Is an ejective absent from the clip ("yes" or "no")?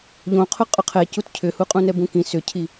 no